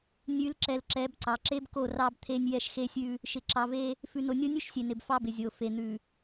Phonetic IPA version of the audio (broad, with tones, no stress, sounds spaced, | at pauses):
nʲ ʉ˨˦ l ǁ ɛ˨ l ǁ ɛ˨˦ b ǀ ɑ˨ ǁ e˦ b k o˦˨ r ɑ˦ b t̪ʰ e˦ nʲ j ɛ˦ ʃ x e˦ sʲ ʉ˦ | ʃ ɪ˨ ǁ ɑ˨ v e˦ | f ʉ˨ n o˨ nʲ o˦ nʲ ʉ˦ ʃ sʲ e˨ n ɪ˨ b f ɑ˦ b ɪ˨ zʲ o˨ f e˨ n̪ ʉ˨